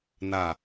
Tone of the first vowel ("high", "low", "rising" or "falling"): low